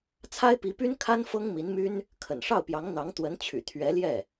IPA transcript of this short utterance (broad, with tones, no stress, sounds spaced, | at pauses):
t͡sʰ a˥ ɪ̯ p i˧˥ p y˥ n kʰ a˥ n f ɤ˥ ŋ m i˧˥ n m y˥ n | kʰ ə̰˨˩ n ʂ ɑ˥˩ ʊ̯ p j ɑ˧˥ ŋ n̪ ɑ˧˥ ŋ t̪ w ə˧˥ n t͡ɕʰ y̰˨˩ t̪ʰ ɥ ɛ˧˥ l j ɛ˥˩